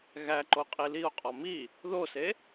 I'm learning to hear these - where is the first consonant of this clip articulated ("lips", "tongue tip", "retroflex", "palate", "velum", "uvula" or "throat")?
velum